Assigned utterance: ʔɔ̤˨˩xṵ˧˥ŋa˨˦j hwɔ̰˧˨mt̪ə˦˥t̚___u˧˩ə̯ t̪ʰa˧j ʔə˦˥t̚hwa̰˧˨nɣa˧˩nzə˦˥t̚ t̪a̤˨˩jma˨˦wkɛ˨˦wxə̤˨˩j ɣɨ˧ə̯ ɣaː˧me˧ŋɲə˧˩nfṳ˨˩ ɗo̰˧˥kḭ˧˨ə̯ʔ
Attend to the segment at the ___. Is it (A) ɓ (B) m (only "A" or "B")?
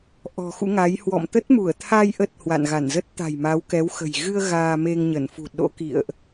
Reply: B